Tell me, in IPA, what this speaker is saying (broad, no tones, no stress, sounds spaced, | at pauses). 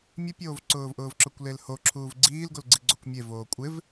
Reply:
mʲ ʊ pʲ oː v ǀ ʊː v ʔ ʊː v ǁ ʊ kʷ l e l h o ǁʰ uː v ɡ͡ǀ iː l ɡ o l ɡ͡ǀ i ɡ͡ǀ o kʷ mʲ e v oː kʷʼ ɪ v